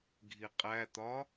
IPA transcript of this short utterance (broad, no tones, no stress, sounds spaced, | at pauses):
ɡʱ i qʼ æ t̪ ɒ